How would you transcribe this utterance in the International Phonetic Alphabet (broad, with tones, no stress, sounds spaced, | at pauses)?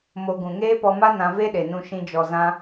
m o˧ ɡ ũ˨ ŋ eː˦ p ɔ˧ m a˦ n ã˧ v e˦ ɗ e˨ n ũ˧ ʃ ĩ˧ d͡ʒ ɔ˨ z ã˦